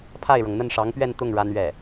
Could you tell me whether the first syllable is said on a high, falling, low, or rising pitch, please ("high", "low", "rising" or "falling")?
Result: falling